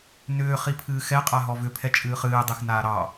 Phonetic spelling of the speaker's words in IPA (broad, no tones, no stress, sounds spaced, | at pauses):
n ʏː χ i pʰ ɨː x ɛ qʼ a ɦ ɔ v ʏ pʰ ɛ t͡ʃʼ ɨː χ ɨː dˤ e x n aː ɾ ɑ